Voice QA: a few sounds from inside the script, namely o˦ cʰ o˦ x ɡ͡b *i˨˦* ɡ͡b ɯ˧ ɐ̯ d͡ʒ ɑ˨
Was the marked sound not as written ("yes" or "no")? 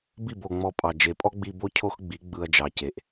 no